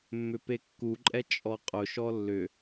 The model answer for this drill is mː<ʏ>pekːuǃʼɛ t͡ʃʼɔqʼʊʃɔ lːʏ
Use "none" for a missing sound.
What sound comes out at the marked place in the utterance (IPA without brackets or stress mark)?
ʏ